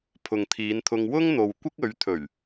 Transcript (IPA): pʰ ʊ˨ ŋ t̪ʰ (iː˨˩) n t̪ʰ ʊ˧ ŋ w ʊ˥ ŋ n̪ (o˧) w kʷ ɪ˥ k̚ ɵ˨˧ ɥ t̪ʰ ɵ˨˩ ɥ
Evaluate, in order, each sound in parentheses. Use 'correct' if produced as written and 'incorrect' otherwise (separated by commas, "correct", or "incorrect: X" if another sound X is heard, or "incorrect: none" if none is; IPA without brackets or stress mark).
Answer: incorrect: iː˨˧, incorrect: o˨